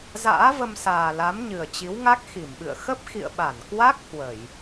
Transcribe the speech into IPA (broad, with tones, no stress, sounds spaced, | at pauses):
z a̰ː˧˥ v ə˧ m s aː˨˩ l a˨˦ m ɲ ɨ˨˩ ə̯ t͡ɕ i˨˦ w ŋ a˦˥ k̚ x i˧˩ m ɓ ɨ̰˧˨ ə̯ x ə˦˥ p̚ x ḭ˧˨ ə̯ ɓ a˧˩ n k w a˦˥ k̚ h w ə˧˩˨ j